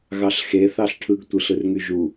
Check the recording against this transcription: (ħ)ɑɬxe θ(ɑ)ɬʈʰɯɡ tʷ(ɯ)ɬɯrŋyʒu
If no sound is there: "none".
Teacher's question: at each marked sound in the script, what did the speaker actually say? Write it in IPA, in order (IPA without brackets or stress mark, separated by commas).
ɣ, ɑ, ɯ